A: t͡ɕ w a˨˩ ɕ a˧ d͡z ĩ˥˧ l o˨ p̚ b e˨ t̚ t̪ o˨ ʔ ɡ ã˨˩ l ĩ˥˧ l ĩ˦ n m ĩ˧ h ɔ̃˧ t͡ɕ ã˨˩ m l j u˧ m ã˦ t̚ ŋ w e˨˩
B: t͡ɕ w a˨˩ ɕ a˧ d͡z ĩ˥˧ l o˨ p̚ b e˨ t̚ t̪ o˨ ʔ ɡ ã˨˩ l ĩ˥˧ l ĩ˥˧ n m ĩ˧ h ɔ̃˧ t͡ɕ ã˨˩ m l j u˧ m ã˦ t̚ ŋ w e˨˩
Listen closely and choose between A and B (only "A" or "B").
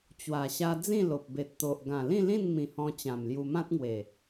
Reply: B